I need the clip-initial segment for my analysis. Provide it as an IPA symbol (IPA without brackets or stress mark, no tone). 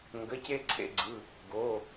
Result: ŋ